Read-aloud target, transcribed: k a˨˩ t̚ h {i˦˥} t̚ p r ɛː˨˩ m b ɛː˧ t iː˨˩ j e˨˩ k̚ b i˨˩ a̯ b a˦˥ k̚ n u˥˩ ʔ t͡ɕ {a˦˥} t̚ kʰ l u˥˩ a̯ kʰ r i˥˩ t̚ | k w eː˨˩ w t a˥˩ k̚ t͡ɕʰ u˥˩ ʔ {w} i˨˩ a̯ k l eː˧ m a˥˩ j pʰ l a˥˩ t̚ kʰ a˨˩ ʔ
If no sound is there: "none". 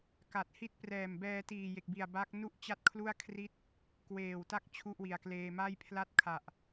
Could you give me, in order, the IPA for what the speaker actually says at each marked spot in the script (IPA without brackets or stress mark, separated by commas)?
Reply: i˦˥, a˥˩, w